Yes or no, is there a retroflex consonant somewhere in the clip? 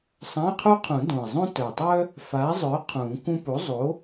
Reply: no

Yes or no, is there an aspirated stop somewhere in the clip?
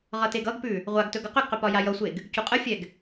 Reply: no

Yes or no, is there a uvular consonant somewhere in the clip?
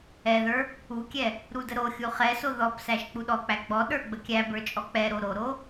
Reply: yes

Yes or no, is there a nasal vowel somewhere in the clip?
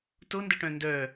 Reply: yes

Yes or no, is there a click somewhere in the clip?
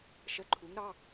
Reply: yes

